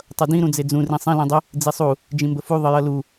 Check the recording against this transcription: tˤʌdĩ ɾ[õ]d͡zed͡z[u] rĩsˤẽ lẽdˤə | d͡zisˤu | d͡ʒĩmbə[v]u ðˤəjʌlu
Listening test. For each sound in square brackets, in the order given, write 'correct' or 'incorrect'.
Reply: incorrect: ũ, incorrect: ũ, incorrect: f

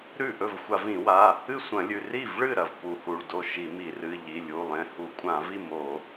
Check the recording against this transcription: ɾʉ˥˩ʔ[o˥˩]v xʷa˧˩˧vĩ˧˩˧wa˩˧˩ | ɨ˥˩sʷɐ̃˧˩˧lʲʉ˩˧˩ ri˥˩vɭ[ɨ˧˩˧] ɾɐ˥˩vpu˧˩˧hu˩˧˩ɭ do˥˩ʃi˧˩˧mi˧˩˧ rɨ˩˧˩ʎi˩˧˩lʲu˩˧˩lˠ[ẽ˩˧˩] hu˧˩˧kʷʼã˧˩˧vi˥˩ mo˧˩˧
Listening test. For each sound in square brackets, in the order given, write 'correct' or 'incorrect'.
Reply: incorrect: ɵ˥˩, incorrect: ɨ˥˩, correct

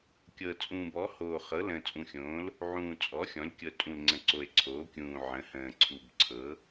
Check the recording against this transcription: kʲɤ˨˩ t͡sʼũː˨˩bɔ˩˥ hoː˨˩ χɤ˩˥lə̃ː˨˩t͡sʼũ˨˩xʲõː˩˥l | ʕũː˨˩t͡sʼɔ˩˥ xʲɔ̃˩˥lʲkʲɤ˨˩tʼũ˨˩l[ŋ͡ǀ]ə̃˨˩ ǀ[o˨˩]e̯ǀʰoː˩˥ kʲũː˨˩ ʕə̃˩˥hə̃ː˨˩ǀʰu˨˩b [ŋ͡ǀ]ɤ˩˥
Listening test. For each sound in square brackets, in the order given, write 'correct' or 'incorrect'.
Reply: correct, correct, incorrect: ǀʰ

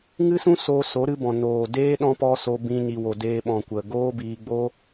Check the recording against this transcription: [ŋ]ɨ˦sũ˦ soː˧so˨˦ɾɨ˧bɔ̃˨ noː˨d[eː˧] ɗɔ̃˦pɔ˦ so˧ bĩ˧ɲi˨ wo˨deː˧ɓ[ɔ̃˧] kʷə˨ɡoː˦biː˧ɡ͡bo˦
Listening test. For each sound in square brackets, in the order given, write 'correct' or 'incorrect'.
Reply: correct, incorrect: eː˦, incorrect: ɔ̃˨

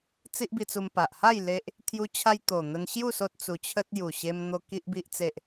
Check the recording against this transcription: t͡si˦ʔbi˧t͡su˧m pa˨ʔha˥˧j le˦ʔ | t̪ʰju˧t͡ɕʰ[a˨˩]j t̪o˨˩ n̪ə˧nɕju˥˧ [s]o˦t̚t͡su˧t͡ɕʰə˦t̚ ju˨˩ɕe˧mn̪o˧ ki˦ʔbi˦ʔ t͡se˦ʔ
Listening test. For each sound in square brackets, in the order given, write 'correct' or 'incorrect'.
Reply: incorrect: a˧, correct

